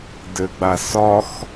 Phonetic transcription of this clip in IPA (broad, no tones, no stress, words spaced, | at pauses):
dɘɡ͡basɒx